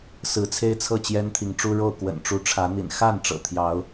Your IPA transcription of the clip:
s ɹ̩˨˦ t͡sʰ e˦ ɪ̯ t͡sʰ ɤ˥˨ t͡ɕ j ɛ˦ n t̪ʰ i˨˦ ŋ ʈ͡ʂ u˦ ɻ o˥˨ ʊ̯ k w ə̰˨˩ n ʈ͡ʂ u˨˦ ʈ͡ʂʰ ä˨˦ n̪ ḭ˨˩ n x a˥˨ n ʈ͡ʂ ɤ̰˨˩ t̪ʰ j ɑ˨˦ ʊ̯

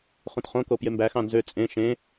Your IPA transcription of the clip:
χ ũ t χ õ k o p j e m b æ x ɑ̃ n z ø t͡sʼ ẽ ʃ ẽ

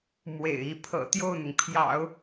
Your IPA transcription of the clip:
m w ḛ˨˩ ɪ̯ i˧˥ pʰ ɤ̰˨˩ t̪ j o˥˩ ʊ̯ n̪ ʊ˩ ŋ pʰ j ɑ̰˨˩˦ ʊ̯

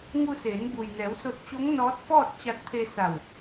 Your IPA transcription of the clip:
ŋ u˧ s eː˩˧ n b u˩ j n ɛː˩˧ w s o˧ t̚ t͡ɕ o˧˥ ŋ n ɔː˧˥ t̚ f ɔː˥˨ t̚ t͡ɕ a˧ t̚ t̪ʰ e˧ s a˧˩ w

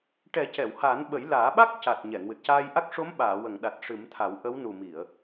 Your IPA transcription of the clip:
ʈ ɛ˨˩˦ c ɛ˨˩˨ w h aː˨˩˦ n ɓ ə˨˩˦ j l aː˨˩˦ ɓ a˦˥ k̚ c a˨˩ t̚ ɲ ɛ˨˩˨ ŋ w ɨ˨˩ t̚ c aː˧ j ʔ a˦˥ k̚ ʂ o˧˥ m ɓ aː˨˩˨ w ə˨˩˨ ŋ ɗ a˨˩ t̚ ʂ ɨ˨˩˦ m t̪ʰ a˨˩˦ w ʔ ə˧˥ w n u˨˩ m i˨˩˨ ə̯

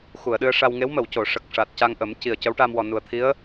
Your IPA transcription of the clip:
x u˨˩˨ ə̯ ɗ ɨ˧ ə̯ ʂ a˧ w ŋ e˧˥ w m ə˨˩˨ w c o˨˩˨ ʂ ə˨˩ k̚ ʂ a˨˩ t̚ c a˧ ŋ ʔ ə˨˩˦ m c i˨˩ ə̯ c ə˧˥ w ʈ a˧ m w ɔ˨˩ n u˨˩ ə̯ t̪ʰ i˧˥ ə̯

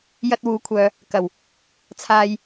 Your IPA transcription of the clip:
j ɐ˧ t̚ w uː˨˥ kʷʰ œː˨ | k ɐ˨˩ w | t͡sʰ aː˨ j

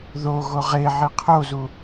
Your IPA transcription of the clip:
ð o ɣ o ʁ e ʕ i qʰ o z u

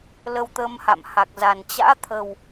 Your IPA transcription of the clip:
l ə˧ w t̪ ə˧ m h a̰˧˨ m h a˨˩ k̚ z a˨˩ n t͡ɕ a̰ː˧˥ t̪ʰ ə˨˩ w

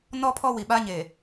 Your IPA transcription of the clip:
n ɔ˦ pʰ ɔ˦ w i˨ ɓ a˦ ɲ e˨

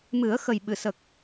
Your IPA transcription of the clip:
m ɨ˨˩˦ ə̯ x ə˨˩ j ɓ ɨ˨˩˨ s ə˨˩ k̚

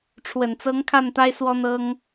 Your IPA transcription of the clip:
ʈ͡ʂʰ w ə˨˩ n t͡s ɤ˧˥ ŋ kʰ a˥˩ n t̪ a˥ ɪ̯ s w ɔ˥ n̪ ɤ˥ ŋ

